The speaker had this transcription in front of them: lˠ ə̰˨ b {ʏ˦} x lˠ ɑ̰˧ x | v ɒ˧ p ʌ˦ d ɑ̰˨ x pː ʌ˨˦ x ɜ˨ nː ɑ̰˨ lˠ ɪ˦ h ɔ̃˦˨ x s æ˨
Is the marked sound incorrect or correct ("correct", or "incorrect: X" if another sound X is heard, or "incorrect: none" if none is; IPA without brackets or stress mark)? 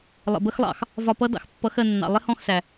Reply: incorrect: ə˦